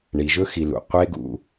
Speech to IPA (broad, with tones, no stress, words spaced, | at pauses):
ɳi˨ʒɵ˦ xi˧lṵ˨ qʷe˦ɡṵ˧